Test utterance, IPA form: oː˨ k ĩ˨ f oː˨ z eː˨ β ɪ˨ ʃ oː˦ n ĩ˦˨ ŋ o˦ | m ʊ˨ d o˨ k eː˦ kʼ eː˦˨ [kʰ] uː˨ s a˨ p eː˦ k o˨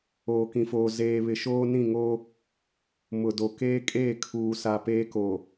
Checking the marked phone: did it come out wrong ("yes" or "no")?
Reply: no